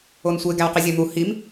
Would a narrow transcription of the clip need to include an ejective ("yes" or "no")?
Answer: no